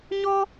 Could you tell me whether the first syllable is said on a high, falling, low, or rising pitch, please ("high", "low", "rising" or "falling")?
high